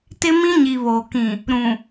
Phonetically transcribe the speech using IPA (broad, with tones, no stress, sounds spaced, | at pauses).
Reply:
t ɪ˦ m ĩ˦ ɲ i˨ β oː˨ k ĩ˨ | ɾ ũ˨